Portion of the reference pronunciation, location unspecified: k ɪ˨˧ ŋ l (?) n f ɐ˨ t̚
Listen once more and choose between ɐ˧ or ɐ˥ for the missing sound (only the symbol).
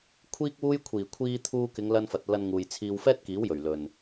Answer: ɐ˧